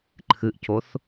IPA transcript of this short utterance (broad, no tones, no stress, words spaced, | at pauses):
ǃʰɨʔcoθ